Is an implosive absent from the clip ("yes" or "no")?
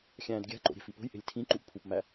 yes